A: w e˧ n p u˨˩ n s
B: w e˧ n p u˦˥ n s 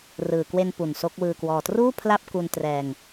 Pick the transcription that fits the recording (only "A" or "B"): A